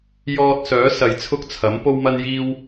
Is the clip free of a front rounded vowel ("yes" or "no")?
no